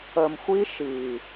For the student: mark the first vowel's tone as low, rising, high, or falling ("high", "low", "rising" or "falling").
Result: low